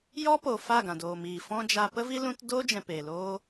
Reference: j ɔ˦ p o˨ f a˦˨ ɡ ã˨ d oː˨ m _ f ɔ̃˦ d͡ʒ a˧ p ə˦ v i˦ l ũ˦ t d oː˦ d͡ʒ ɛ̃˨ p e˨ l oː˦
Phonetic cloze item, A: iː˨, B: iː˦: A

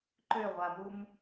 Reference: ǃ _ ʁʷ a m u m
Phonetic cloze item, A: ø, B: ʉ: A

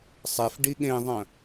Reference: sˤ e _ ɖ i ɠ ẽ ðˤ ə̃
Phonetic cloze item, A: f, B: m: A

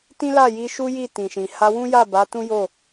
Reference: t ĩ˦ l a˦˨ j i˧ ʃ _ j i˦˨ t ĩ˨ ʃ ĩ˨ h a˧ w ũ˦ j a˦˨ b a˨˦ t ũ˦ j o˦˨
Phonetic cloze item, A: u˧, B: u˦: B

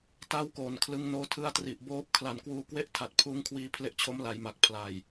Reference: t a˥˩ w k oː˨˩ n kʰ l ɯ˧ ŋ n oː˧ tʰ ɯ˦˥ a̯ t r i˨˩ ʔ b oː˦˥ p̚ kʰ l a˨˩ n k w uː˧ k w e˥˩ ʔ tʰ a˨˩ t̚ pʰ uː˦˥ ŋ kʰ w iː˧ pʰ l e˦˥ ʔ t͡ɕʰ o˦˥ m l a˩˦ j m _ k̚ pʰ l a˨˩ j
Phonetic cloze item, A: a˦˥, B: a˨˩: B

